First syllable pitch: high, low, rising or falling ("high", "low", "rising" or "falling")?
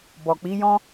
low